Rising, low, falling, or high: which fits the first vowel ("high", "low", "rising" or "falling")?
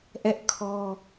high